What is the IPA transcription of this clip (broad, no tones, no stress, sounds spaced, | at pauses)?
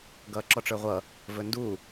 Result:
ɡ ʌː ǁ ɔ ʈ͡ʂ ə˞ ʁʷ ʌ | v ɵ n d u